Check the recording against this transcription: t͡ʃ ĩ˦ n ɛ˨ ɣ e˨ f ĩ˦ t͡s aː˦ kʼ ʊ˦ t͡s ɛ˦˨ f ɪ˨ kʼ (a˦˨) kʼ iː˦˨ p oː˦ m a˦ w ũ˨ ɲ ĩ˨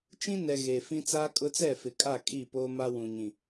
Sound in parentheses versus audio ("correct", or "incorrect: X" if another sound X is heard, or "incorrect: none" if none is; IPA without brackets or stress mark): correct